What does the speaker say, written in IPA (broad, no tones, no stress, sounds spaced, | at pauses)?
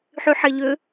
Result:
ħ y ħ ɛ ʎ ø